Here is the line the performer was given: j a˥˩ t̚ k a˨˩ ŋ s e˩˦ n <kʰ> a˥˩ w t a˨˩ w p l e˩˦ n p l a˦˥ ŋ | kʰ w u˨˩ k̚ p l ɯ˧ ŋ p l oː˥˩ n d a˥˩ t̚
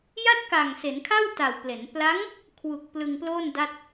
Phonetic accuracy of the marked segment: correct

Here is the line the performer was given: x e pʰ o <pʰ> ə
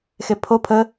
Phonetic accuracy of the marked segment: correct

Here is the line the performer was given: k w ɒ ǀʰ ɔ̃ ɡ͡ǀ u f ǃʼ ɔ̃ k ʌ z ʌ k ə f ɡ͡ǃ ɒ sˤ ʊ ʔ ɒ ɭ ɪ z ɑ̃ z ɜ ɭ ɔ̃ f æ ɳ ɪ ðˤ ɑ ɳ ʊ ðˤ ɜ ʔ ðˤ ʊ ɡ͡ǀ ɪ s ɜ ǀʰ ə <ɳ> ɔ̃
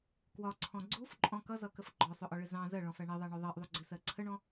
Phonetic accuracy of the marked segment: correct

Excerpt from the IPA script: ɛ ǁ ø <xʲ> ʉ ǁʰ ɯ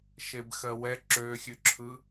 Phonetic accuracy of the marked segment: correct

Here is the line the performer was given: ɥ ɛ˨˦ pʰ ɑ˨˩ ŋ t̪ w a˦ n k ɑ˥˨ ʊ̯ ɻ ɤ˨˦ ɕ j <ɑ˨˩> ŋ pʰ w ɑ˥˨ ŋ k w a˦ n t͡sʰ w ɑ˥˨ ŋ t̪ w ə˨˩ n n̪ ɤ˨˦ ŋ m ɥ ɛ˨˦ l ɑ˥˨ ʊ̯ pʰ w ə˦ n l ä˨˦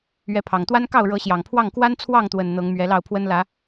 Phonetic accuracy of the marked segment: correct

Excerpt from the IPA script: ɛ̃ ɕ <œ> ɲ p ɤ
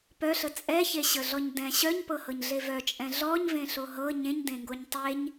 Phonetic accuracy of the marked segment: correct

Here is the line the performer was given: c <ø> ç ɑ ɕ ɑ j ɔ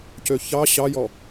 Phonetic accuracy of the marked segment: correct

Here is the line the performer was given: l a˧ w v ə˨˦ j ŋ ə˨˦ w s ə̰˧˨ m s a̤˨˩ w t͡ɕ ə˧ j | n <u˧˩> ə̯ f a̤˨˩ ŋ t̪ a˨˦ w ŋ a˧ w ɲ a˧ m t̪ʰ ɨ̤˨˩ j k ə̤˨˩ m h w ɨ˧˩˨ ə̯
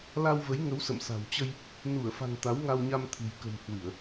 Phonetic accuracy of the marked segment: correct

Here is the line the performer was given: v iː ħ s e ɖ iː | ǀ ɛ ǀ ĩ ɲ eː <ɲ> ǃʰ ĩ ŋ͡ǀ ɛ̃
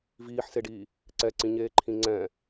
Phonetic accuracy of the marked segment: incorrect: none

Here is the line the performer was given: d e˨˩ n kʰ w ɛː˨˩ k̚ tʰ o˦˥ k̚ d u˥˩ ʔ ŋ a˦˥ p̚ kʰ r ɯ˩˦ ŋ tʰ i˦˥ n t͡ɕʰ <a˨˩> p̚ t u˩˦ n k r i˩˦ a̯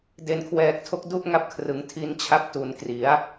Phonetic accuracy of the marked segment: incorrect: a˥˩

